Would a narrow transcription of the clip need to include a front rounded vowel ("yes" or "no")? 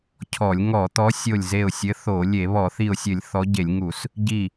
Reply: no